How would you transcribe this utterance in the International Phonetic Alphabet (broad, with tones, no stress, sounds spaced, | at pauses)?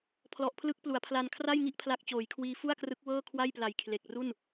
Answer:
pʰ l ɔ˨˩ ʔ pʰ l ɯ˦˥ k̚ p l u˩˦ a̯ pʰ l a˧ n kʰ r a˥˩ j ŋ i˥˩ ʔ pʰ l a˦˥ k̚ t͡ɕ oː˩˦ j kʰ w iː˧ f u˥˩ a̯ k r ɯ˦˥ k̚ w ɤː˥˩ kʰ w a˥˩ j p l a˨˩ j kʰ l e˨˩ k̚ r u˥˩ n